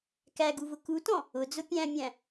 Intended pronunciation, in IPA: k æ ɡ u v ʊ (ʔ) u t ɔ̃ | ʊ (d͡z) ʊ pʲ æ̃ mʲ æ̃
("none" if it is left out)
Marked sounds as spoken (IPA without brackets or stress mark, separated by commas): k, d͡z